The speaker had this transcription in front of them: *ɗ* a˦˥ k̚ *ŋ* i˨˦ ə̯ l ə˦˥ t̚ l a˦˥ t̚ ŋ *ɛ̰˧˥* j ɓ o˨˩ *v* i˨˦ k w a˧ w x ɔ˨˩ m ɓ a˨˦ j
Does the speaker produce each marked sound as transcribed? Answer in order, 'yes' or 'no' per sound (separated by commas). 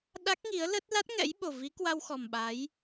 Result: yes, yes, yes, yes